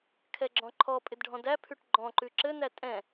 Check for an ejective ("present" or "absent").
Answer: present